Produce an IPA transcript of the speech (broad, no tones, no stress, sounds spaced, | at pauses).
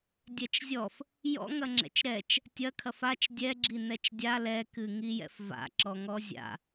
dʲ ɛ t͡ʃ zʲ ɔ f | j ɔ̰ ŋ ɐ ŋ͡ǁ ɛ̰ t͡ʃ ɾ ɛ t͡ʃ | tʲ ɐ kʰ ɐ f a t͡ʃ dʲ ɛ ɡ͡ǁ i n ɛ t͡ʃ dʲ a l ɛ k ɨ ŋ i j ɛ̰ f v a̰ ǁ ɔ ŋ ɔ zʲ a̰